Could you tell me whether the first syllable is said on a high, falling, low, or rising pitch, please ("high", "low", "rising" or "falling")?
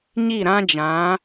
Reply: falling